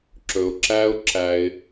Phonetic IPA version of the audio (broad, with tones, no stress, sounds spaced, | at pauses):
ǁ ɵ˨ ʊ̯ ǁ æ˦ ʊ̯ ǁ æ˧ ɪ̯